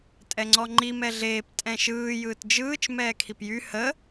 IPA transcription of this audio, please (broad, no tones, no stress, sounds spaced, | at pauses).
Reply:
tʼ ɛ ŋ͡ǀ ɔ ŋ͡ǃ i m ɛ ɮ eː p tʼ ɛ̃ ʃ ɯː j ɯː t d͡ʒ ɯː t͡ʃ m ɛː kʰ i p j y h ə